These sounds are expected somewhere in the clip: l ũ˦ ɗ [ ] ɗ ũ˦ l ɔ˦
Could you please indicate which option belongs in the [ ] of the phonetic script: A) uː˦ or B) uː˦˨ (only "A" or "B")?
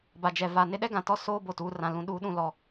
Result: A